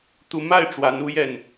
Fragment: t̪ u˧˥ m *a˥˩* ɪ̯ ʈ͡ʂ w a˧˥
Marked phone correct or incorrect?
correct